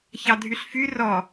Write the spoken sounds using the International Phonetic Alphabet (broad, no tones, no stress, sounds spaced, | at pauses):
ç ɑ dʱ y ɬ f y r ɔ